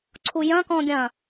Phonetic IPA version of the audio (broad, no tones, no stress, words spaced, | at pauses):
ǀʰujɐ̃ kɔ̃ɡʲɐ̃